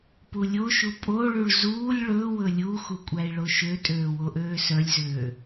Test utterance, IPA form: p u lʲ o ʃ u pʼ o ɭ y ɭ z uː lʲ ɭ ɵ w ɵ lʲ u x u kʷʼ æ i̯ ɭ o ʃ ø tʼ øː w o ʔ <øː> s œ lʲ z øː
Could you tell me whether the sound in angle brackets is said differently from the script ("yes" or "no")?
no